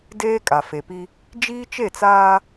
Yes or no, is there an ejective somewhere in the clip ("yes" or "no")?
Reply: yes